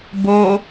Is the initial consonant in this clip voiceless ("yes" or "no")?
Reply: no